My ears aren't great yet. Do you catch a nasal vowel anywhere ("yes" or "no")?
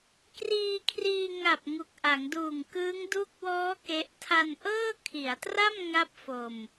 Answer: no